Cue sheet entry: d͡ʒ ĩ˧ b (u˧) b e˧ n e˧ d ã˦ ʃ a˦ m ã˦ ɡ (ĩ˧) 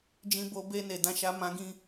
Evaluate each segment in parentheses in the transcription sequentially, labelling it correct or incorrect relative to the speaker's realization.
incorrect, incorrect

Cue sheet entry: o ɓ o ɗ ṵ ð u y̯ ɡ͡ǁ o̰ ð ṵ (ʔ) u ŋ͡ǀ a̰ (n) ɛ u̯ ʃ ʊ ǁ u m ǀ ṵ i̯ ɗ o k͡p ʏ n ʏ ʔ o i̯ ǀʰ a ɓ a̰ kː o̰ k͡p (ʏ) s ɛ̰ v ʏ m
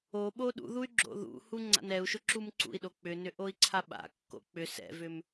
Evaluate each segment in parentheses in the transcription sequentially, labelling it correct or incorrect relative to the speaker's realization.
incorrect, correct, correct

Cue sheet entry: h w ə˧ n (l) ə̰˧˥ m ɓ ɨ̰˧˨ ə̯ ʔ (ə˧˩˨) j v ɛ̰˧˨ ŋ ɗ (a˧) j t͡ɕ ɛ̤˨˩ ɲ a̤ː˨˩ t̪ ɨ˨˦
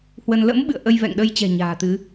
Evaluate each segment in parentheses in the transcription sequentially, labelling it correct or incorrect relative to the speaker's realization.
correct, incorrect, incorrect

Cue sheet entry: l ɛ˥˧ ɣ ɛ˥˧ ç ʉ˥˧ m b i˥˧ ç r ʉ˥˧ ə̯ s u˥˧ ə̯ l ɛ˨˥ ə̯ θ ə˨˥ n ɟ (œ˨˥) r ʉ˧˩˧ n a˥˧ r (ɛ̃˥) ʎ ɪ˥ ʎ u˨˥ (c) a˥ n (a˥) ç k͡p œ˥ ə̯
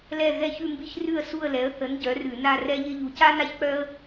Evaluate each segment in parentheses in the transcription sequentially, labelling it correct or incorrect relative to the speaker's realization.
correct, incorrect, correct, correct

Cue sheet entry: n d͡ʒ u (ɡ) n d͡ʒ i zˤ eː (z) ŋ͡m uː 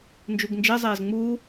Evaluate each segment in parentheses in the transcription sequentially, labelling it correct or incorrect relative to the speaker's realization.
correct, correct

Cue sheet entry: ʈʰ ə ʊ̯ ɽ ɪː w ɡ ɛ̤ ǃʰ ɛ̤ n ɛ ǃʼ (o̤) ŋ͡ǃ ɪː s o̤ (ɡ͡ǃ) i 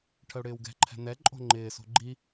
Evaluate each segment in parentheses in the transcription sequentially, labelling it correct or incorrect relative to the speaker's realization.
correct, correct

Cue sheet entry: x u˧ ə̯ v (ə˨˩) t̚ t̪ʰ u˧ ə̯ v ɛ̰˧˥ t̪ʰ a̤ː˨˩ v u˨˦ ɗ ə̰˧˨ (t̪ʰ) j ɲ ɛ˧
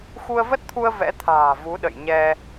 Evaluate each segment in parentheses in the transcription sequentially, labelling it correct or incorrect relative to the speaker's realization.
incorrect, incorrect

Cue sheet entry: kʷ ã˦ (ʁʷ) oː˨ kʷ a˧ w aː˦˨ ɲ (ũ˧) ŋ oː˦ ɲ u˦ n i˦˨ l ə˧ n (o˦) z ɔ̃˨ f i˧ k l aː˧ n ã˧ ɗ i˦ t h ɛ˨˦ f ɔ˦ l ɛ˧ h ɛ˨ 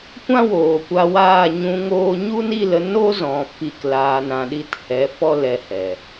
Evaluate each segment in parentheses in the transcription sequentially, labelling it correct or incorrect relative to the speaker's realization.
incorrect, correct, correct

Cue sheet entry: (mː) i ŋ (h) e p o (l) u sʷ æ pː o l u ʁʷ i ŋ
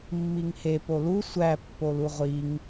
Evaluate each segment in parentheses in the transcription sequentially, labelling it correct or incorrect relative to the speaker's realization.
correct, correct, correct

